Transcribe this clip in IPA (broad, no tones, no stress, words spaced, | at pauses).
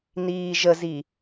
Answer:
niːʒəzi